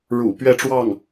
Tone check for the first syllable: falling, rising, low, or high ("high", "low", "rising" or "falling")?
low